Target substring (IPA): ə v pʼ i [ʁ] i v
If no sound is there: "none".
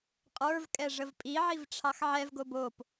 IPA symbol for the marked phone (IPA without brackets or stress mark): ʕ